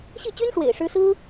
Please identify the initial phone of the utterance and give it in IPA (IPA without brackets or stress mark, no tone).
ɕ